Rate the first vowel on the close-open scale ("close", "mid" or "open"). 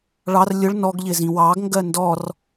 open